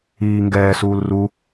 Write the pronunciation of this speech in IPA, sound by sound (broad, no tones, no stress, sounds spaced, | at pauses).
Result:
iː ŋ ɡ ɛː s uː l r u